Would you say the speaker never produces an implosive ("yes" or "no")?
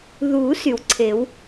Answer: yes